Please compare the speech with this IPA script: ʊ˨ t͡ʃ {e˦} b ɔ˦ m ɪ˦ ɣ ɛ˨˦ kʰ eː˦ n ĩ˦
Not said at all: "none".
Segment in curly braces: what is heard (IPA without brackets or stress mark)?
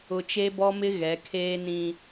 e˦